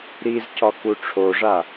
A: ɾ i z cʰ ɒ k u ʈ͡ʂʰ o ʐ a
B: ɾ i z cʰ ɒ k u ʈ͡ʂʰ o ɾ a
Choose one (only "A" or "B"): A